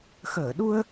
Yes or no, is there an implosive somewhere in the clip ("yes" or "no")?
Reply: yes